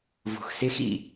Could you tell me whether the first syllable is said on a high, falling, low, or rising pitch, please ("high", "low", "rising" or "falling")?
low